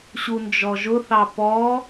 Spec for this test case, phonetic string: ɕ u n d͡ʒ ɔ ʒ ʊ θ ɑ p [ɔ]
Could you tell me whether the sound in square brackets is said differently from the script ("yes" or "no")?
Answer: no